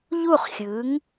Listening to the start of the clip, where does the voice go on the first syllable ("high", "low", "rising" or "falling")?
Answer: falling